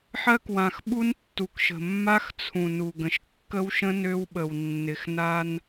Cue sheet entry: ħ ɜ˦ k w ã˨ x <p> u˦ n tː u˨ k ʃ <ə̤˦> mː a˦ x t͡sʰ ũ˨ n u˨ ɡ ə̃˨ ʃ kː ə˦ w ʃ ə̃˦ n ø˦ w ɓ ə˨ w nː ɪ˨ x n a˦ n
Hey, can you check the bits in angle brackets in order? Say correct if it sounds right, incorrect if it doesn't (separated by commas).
incorrect, incorrect